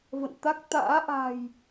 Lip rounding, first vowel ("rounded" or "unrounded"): unrounded